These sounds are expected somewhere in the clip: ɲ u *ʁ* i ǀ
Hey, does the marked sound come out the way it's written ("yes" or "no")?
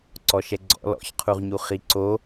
no